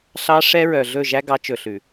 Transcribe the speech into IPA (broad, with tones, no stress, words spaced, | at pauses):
ɬɑ˦ ʂɛ˦ɹœ˨ ɮɵ˦˨ʒæ˦ɡɑ˨˦ t͡ʃɵ˨ɬʉ˨